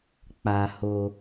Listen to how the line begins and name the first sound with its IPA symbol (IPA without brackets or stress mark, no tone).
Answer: k͡p